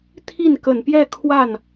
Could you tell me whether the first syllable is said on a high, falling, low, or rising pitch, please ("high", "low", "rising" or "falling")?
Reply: falling